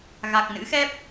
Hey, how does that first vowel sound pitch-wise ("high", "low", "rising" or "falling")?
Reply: low